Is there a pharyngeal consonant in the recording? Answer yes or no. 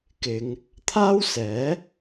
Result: no